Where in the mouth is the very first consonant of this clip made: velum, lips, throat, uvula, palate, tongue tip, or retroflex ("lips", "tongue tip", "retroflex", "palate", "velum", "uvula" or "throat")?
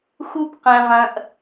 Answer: velum